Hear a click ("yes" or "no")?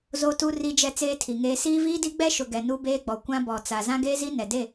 no